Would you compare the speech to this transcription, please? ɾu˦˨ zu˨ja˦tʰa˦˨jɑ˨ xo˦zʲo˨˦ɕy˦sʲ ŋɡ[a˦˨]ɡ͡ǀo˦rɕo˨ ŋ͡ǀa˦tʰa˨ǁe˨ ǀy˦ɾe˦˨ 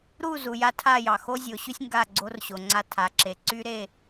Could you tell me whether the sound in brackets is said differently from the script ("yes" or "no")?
no